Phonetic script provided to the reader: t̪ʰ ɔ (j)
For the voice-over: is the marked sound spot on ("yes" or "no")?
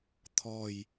yes